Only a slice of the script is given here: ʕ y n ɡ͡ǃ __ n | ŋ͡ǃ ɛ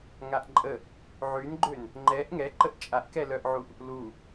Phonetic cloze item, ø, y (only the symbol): ø